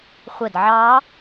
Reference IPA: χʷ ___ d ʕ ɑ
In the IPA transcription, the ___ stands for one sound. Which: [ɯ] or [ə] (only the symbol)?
ə